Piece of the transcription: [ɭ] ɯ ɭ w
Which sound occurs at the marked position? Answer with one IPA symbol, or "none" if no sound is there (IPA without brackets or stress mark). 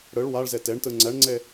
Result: ɽ